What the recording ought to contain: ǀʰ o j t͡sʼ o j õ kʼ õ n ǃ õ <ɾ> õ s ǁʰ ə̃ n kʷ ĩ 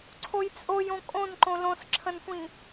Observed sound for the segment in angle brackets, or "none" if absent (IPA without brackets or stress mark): l